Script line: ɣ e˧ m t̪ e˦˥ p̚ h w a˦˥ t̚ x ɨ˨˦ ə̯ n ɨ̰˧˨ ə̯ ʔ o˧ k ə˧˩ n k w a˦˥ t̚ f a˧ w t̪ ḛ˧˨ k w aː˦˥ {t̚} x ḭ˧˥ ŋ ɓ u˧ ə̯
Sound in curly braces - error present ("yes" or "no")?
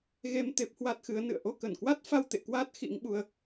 no